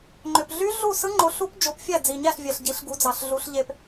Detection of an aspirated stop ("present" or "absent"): absent